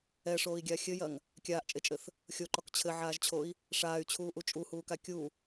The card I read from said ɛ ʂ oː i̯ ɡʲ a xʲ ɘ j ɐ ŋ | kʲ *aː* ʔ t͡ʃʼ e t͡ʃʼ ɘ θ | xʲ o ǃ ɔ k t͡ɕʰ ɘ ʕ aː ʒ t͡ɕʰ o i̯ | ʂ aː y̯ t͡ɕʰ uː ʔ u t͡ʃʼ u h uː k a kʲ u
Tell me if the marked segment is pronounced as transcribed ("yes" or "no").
yes